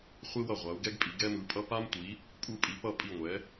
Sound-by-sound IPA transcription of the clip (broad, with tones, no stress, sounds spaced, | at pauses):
χʷ i˧ w ʌ˧˩ ʁʷ a˩˧ u̯ ɡ ɛ˧ ɡ pʼ i˩˧ ɡ ɛ˧ m ɯ˩˧ pʼ ʌ˧ p a˧ m tʷ i˩˧ | pʼ u˧˩ pʼ i˩˧ p ʌ˧˩ pʼ i˧˩ ŋʷ ɛ˩˧